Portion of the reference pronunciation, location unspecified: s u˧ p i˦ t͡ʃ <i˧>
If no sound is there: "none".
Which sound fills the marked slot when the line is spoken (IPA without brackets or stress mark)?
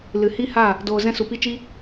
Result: i˦